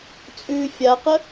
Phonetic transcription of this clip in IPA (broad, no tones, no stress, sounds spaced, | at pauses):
t͡sʼ ʉ fʲ a q ə